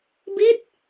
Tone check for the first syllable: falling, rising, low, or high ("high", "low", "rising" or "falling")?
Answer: falling